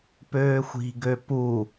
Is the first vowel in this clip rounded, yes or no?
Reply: yes